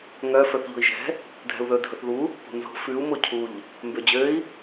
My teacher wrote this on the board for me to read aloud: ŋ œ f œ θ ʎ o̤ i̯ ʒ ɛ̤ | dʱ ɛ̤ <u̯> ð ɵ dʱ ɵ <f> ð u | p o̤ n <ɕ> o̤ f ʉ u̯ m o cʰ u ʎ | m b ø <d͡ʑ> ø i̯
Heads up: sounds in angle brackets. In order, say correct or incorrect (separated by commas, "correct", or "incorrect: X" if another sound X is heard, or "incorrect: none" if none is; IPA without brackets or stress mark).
correct, incorrect: θ, incorrect: z, correct